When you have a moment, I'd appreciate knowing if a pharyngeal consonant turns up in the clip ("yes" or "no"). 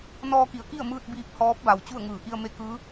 no